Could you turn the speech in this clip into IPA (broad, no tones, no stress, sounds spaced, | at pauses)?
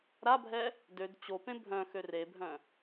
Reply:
ɾ a bʱ ɛ | d ø d t͡ɕ o p ẽ bʱ œ̃ x ø r e bʱ œ̃